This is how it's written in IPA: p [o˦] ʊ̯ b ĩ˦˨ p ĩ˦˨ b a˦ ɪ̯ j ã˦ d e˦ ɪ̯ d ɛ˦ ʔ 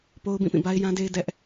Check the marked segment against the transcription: correct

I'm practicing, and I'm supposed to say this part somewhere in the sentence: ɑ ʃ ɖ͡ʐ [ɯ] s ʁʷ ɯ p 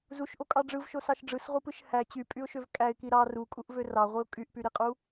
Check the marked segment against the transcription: correct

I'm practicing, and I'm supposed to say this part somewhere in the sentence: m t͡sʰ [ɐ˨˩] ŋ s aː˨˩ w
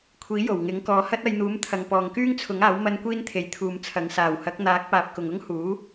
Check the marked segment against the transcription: incorrect: ɐ˨˥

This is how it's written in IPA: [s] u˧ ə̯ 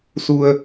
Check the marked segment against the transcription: correct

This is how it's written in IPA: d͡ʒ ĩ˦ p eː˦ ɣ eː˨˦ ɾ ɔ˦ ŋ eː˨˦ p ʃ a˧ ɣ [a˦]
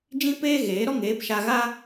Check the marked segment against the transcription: correct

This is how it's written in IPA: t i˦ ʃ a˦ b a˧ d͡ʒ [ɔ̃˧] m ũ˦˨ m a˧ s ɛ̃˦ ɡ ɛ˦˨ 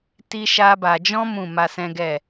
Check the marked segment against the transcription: incorrect: ɔ̃˦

